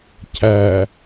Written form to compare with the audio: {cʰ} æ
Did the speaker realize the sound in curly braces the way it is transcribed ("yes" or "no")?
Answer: yes